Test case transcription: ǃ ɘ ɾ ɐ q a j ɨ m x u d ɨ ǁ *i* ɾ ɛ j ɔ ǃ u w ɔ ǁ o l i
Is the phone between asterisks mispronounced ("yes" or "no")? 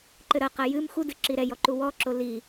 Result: no